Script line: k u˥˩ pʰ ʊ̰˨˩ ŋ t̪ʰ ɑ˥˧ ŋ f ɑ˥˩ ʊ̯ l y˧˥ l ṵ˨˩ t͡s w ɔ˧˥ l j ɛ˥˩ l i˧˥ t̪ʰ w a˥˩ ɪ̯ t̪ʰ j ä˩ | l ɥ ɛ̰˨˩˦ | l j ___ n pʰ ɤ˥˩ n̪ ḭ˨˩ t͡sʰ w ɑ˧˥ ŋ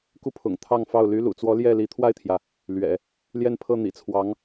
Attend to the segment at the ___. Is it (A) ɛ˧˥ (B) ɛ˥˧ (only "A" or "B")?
B